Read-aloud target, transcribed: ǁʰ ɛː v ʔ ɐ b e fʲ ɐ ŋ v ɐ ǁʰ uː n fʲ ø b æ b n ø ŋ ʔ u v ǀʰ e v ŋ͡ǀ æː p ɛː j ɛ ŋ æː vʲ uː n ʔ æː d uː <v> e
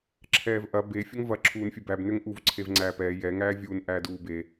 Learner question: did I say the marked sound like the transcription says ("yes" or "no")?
no